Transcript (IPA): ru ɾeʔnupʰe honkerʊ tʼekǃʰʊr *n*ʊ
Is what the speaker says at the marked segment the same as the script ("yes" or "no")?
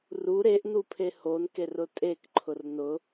yes